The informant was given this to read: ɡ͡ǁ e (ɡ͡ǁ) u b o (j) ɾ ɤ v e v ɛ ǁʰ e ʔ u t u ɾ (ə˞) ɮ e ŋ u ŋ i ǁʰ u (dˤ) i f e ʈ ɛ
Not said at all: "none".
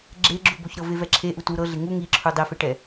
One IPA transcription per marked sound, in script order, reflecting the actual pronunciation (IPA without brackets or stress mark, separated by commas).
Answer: ɡ͡ǁ, ç, ɤ, dˤ